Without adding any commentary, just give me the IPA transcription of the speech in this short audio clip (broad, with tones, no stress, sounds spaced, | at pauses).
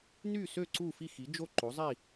n y˥˨ s ø˥˨ ǀ u˥˨ f i˥˨ x i˩˥ d͡ʒ o˥˨ ǃ o˩˥ zˤ i˥˨